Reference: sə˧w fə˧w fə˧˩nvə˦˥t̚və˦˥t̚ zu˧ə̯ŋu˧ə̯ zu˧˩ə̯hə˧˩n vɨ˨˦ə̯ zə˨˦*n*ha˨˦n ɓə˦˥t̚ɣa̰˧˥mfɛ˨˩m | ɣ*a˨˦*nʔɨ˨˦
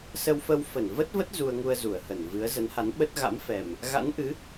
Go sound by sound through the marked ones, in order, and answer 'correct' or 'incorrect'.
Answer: correct, incorrect: a̰˧˥

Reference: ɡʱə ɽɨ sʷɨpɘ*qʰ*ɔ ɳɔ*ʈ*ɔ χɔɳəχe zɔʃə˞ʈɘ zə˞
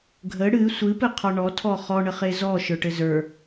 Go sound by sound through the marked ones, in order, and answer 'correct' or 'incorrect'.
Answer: correct, incorrect: tʰ

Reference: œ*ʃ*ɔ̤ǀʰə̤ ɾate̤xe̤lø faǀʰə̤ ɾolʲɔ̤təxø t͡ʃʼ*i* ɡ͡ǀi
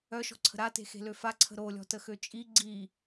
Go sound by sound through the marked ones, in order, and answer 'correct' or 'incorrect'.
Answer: correct, correct

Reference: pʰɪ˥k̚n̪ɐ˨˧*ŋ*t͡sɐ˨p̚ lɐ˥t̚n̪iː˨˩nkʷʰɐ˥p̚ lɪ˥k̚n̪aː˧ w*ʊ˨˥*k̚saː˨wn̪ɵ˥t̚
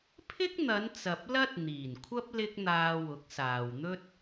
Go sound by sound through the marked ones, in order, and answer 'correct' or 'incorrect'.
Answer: incorrect: n, correct

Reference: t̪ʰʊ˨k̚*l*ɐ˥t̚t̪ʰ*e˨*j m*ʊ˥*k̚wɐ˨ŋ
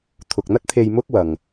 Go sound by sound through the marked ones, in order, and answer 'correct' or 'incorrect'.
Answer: incorrect: n̪, incorrect: e˧, correct

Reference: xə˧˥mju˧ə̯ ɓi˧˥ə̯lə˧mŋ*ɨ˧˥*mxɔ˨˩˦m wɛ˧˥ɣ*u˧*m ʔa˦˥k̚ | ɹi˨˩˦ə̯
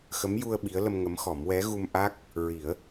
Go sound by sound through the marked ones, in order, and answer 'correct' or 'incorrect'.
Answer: incorrect: ə˧˥, correct

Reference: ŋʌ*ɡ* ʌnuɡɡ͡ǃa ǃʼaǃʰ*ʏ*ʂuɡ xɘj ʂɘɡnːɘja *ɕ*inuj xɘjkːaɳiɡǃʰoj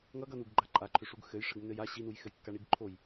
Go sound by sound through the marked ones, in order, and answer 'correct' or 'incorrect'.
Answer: correct, correct, correct

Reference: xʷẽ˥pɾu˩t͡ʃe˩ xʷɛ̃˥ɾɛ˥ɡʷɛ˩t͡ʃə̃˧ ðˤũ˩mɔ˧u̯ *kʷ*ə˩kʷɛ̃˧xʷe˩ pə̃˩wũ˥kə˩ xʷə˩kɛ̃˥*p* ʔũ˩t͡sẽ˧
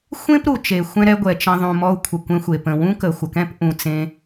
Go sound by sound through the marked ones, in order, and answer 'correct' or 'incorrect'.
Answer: incorrect: kʷʰ, correct

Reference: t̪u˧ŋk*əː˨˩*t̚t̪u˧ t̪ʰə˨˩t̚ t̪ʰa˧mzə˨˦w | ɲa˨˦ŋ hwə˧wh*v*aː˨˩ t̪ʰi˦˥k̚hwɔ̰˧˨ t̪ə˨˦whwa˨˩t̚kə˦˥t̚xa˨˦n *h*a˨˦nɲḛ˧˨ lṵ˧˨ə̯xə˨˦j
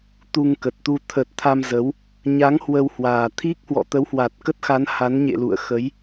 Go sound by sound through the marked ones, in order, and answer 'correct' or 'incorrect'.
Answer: incorrect: ə˨˩, incorrect: w, correct

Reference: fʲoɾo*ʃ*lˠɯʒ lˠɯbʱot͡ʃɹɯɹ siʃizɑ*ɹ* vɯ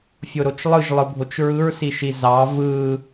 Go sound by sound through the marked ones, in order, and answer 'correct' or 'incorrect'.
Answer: incorrect: t͡ʃ, incorrect: none

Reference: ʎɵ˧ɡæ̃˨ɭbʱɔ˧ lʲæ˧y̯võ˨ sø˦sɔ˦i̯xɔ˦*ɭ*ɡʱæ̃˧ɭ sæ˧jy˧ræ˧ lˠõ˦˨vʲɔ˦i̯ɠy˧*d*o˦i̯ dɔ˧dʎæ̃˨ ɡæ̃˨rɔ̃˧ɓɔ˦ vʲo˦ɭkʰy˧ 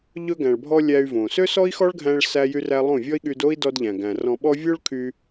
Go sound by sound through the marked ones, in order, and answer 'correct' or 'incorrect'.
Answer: correct, correct

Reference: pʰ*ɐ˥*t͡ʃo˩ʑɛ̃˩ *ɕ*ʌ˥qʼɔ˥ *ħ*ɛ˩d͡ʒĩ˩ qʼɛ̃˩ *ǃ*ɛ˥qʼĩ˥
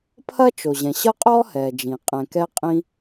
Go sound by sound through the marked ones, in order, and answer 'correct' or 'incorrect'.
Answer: correct, correct, incorrect: h, incorrect: k

